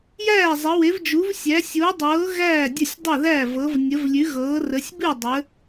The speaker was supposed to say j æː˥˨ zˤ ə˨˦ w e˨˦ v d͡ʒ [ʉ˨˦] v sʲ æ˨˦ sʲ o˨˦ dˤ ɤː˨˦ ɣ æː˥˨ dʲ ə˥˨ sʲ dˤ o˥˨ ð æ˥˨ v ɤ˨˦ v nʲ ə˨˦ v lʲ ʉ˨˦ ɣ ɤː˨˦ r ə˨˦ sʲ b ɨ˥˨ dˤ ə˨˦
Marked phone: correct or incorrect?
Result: incorrect